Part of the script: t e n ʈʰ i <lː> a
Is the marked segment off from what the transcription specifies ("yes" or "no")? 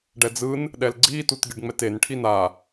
yes